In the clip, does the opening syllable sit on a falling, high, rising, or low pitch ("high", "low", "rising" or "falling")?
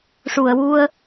low